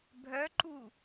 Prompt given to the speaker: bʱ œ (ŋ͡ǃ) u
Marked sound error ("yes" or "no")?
yes